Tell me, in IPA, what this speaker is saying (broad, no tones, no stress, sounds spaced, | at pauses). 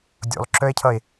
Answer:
dʲ o̰ lˠ ǁ œ e̯ cʰ ʌ e̯